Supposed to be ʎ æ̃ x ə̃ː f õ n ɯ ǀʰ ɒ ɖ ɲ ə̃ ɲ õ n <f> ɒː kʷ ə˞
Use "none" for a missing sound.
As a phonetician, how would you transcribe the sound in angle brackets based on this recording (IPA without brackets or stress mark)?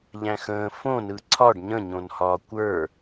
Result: h